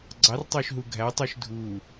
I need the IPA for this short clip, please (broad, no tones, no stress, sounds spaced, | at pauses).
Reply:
ɡ͡ǀ ɑ r tˤ ø ʃ ɦ u ɡʱ æ tˤ u ʃ dʱ u